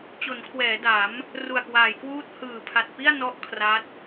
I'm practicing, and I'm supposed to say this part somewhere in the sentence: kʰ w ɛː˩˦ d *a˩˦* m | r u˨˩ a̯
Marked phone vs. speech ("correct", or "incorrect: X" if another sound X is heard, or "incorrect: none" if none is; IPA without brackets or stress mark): correct